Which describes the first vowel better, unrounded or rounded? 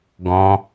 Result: rounded